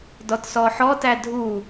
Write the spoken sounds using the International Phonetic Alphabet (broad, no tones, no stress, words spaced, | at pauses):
dɔtsɔħɔ tædʱu